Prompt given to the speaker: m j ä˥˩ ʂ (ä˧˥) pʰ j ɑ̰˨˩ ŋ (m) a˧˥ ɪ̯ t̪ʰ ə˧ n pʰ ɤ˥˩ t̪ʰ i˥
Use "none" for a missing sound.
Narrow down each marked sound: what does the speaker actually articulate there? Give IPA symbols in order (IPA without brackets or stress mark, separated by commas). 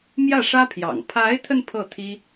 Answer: ä˥, pʰ